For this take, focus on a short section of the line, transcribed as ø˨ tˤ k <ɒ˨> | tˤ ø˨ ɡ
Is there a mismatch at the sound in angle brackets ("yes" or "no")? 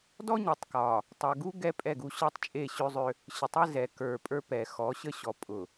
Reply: no